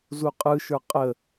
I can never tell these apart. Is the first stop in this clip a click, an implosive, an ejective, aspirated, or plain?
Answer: ejective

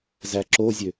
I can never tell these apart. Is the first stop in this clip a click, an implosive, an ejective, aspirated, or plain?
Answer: click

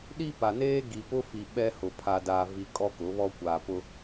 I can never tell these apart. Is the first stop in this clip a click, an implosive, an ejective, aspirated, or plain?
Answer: implosive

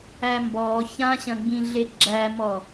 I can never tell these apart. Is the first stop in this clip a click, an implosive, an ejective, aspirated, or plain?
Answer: plain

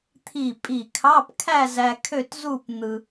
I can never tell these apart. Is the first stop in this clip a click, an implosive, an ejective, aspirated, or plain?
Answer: aspirated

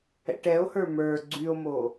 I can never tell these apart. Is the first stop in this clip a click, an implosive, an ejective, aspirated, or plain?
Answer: plain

